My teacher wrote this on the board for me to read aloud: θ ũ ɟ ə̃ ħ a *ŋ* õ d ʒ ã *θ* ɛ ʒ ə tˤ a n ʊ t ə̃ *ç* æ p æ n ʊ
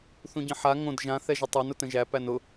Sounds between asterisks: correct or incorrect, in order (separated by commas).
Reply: correct, correct, incorrect